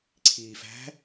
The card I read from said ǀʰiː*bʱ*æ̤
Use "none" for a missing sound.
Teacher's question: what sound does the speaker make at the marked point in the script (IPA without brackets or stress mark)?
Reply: f